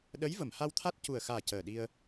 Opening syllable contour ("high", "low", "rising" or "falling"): rising